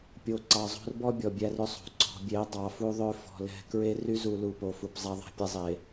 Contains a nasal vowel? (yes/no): no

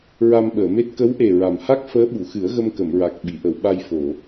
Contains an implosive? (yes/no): yes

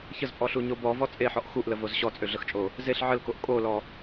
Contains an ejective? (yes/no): yes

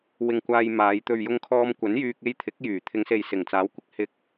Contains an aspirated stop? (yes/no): yes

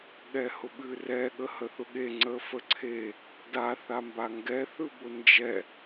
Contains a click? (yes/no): yes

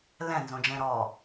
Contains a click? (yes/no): no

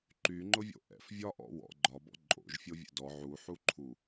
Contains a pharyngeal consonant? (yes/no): yes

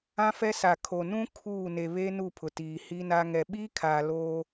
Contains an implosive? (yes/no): yes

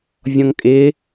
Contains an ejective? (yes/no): yes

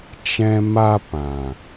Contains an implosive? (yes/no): no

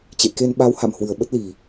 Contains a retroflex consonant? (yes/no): no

